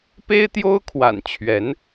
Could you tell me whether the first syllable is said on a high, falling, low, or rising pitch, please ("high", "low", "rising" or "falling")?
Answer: high